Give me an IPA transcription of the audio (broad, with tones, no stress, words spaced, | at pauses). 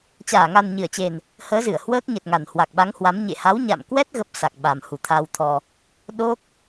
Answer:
t͡ɕaː˧˩ŋa˨˩nɲɨ˧˩ə̯t͡ɕe˨˩n | həː˨˦zɨ˧˩ə̯ hwəː˦˥k̚ɲə˨˩t̚ŋa˨˩n hwa˨˩k̚ɓa˨˦ŋhwa˨˦m ɲḛ˧˨ha˨˦wɲa̰˧˨mkwɛ˦˥t̚ ɣə˦˥p̚sa˨˩k̚ɓa˨˩m hu˨˩t̪ʰa˧wt̪ʰɔ˧ | ɗo˦˥k̚